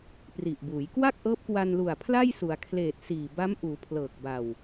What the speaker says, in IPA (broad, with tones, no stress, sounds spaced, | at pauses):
p r i˨˩ ʔ b uː˩˦ j k w a˥˩ k̚ ʔ ɤː˦˥ p̚ k w a˧ n l u˨˩ a̯ pʰ l a˥˩ j s u˩˦ a̯ kʰ l eː˨˩ t̚ s iː˨˩ b a˦˥ m ʔ uː˩˦ pʰ l ɤː˨˩ k̚ b a˨˩ w